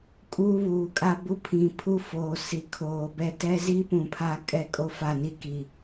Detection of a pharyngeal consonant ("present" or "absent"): absent